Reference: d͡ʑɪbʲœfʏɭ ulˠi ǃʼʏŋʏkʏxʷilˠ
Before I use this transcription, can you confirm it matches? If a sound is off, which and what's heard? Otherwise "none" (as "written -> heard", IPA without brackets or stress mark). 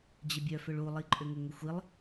k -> ŋ